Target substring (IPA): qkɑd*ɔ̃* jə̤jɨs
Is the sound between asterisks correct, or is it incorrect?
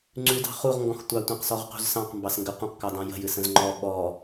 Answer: incorrect